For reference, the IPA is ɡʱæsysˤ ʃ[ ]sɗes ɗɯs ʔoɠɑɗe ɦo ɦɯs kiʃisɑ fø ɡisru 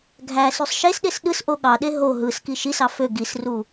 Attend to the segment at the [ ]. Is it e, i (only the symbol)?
e